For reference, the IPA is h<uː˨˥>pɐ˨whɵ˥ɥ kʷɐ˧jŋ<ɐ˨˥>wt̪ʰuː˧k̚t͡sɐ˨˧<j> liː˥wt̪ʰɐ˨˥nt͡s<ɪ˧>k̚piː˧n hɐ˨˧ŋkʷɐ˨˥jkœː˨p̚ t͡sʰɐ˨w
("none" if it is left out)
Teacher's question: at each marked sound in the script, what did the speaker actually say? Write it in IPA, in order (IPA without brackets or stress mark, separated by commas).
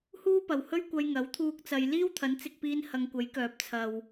uː˥, ɐ˨˥, j, ɪ˧